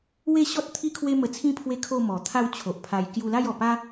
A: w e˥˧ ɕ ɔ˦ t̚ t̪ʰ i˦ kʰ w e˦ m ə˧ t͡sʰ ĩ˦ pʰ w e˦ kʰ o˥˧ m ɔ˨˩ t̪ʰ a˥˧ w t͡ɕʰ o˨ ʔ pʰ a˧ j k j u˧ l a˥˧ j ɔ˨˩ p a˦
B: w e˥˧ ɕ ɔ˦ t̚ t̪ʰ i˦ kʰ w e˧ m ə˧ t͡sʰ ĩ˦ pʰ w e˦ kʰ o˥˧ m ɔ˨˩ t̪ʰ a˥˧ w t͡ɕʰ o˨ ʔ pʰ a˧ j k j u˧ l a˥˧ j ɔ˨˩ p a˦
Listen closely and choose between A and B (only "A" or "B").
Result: A